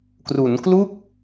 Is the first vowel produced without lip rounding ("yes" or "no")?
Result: no